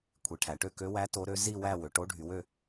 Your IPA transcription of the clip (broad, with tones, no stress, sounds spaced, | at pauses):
kʷʰ i˩˧ ʈʰ æ˩˧ ʈ ø˥˧ k ø˧˥ w æ˧˥ t o˧˥ ɾ ø˧˥ z i˥˧ w æ˥˧ w ø˩˧ ʈ o˧˥ ɖʱ y˩˧ w ø˥˧